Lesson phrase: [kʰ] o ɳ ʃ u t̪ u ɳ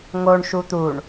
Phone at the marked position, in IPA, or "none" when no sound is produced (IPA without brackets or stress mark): ŋ